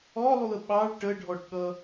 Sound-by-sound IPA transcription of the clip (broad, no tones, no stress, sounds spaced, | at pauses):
ɔ lˠ u ə̯ ɓ ɑ ɭ ʈ ə ɖʱ ɔ ʈ ɠ ʌ